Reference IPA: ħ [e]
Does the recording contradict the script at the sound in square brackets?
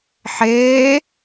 yes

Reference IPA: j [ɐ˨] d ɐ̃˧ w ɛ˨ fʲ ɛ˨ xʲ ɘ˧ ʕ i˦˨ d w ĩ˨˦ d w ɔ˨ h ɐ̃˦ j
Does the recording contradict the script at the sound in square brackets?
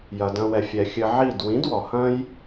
no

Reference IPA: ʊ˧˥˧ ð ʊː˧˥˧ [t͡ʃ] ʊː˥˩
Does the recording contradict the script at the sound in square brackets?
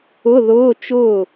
no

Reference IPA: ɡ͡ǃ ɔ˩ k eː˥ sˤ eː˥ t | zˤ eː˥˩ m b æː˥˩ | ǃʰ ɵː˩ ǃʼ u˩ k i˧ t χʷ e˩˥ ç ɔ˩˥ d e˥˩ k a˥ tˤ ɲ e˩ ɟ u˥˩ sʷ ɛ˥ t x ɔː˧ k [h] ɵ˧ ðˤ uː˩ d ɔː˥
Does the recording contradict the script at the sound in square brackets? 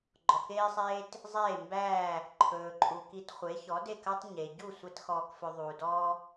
yes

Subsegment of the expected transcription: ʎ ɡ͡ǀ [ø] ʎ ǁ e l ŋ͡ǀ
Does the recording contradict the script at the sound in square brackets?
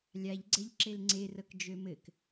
yes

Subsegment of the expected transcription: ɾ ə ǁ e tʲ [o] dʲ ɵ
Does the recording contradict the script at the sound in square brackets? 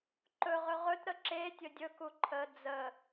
yes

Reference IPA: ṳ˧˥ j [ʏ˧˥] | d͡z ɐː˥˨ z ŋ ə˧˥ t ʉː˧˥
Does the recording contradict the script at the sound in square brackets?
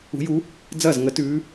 yes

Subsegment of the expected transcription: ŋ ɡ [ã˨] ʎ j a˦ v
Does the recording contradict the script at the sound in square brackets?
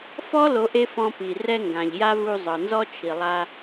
no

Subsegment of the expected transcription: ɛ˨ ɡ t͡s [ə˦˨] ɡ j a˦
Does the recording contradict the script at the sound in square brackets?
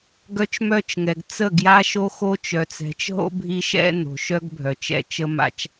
no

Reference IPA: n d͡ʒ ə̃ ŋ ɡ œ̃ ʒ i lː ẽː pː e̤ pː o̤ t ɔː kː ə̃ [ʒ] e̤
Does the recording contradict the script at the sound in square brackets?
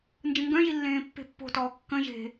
no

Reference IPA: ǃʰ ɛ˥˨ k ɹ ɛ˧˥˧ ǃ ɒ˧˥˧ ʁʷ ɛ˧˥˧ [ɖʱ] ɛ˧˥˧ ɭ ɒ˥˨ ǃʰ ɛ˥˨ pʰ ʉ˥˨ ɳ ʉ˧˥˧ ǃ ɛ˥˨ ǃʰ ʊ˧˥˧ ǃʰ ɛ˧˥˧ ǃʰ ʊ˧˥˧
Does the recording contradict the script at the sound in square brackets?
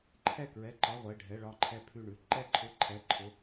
no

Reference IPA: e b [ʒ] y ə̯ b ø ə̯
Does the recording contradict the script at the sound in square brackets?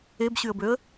yes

